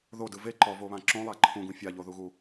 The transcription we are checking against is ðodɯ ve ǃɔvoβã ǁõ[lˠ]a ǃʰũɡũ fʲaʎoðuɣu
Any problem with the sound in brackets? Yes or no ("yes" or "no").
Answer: no